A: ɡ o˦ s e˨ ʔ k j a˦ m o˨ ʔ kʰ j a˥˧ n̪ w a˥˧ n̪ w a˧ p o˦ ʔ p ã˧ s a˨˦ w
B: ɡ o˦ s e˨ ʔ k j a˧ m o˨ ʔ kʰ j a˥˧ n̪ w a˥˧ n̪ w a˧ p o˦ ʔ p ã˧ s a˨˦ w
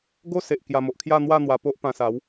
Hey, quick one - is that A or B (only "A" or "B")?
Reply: B